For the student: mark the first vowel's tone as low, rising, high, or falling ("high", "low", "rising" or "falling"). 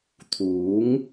rising